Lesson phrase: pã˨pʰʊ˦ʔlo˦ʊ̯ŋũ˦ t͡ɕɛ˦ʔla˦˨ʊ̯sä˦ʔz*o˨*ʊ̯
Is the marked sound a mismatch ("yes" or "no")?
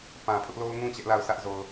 no